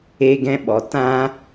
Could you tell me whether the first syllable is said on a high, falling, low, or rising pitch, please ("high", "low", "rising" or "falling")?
high